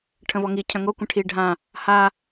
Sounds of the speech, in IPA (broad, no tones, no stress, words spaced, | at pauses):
ʈʰə̃vɔŋicʰœ̃ ŋo kʷə̃ʈʰi ɖʱã | ha